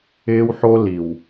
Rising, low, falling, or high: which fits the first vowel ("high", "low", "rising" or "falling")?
high